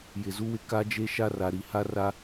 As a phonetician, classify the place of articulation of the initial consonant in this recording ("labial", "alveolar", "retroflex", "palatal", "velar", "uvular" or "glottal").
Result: palatal